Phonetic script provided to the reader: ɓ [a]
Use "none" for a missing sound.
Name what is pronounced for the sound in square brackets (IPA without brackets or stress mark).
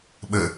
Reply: ə